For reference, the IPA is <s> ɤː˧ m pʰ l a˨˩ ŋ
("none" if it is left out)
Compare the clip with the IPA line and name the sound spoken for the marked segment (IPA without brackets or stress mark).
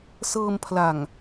s